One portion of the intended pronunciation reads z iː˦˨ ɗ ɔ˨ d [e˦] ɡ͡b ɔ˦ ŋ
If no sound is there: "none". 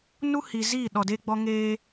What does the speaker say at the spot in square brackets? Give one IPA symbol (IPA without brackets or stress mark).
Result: e˦